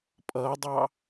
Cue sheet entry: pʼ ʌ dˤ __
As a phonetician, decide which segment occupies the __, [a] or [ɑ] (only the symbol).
ɑ